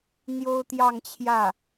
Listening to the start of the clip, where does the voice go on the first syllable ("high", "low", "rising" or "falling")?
high